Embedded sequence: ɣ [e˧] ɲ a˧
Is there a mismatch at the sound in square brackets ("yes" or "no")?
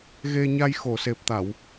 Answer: no